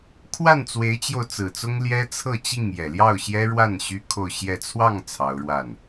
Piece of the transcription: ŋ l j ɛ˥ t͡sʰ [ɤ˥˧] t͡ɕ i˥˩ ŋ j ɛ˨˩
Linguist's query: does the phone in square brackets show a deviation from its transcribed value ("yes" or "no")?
no